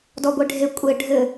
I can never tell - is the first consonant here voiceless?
no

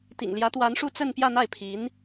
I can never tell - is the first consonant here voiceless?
yes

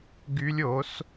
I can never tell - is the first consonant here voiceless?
no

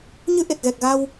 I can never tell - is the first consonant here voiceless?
no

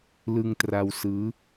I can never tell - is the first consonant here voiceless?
no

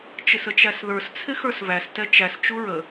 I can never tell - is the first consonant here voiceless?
yes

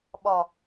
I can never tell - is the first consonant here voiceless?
no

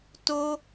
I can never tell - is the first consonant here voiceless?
yes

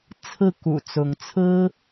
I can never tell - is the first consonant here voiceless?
yes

